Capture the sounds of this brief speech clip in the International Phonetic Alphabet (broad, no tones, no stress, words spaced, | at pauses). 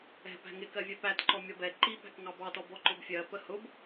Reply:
ɛ̤ pæ̤ŋɪ kɜvʲɛpætǃɔ mʲɒbɛ ǃi pæ̤kŋɑbɑtɔ bɔǃʊbfʲɜ pəhʊb